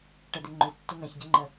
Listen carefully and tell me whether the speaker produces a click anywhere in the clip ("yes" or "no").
yes